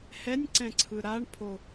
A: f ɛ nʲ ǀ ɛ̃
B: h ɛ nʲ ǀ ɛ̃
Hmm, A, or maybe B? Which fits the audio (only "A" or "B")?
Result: B